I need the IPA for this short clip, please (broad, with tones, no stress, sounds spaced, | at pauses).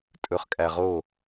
tʼ ɵ˨ χ kʼ æ˨ ʁ o˦˨